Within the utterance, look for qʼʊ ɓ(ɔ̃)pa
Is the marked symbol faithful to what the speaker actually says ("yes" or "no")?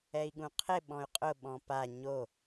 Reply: yes